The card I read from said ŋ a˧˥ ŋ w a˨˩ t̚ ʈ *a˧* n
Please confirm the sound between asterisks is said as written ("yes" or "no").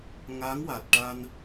yes